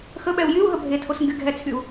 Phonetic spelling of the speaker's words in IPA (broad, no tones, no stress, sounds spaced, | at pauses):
x ə ɓ ɛ u̯ j y u̯ ɦ ə bʱ e tʰ o s ŋ ɡ y ɡʱ ɛ t͡sʰ y u̯